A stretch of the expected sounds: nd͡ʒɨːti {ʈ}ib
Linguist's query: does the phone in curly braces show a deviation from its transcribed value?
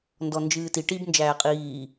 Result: no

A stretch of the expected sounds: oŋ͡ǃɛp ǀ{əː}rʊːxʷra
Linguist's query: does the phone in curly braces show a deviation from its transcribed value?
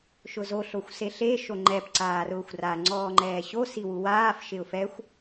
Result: yes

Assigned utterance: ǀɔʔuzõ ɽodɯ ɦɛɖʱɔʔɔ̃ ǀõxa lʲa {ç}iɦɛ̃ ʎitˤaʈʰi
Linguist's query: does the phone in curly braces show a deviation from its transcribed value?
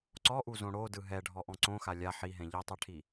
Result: yes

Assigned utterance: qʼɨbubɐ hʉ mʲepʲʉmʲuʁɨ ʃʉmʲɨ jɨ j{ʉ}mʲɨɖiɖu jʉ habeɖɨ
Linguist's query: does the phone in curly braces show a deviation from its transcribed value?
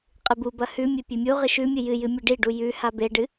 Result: yes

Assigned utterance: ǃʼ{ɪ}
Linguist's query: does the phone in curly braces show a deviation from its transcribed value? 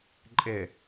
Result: no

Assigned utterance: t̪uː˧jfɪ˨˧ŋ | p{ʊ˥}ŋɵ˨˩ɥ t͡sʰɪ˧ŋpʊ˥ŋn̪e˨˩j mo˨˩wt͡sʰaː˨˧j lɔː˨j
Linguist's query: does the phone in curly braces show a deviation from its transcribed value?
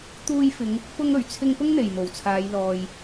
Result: no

